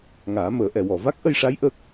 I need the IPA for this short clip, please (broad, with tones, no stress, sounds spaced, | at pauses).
ŋ aː˨˩˦ m əː˨˩˦ ʔ ɛ˨˩˨ w ɔ˨˩˨ v a˦˥ k̚ ʔ ə˧ j ʂ a˧˥ j ʔ əː˦˥ k̚